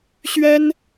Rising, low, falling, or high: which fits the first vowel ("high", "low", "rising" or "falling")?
high